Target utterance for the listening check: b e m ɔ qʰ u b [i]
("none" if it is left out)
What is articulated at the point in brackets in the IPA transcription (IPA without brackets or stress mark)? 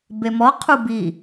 i